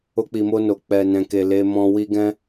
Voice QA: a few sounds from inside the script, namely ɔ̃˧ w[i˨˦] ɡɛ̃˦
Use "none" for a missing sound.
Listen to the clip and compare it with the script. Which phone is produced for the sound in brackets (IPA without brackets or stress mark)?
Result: i˦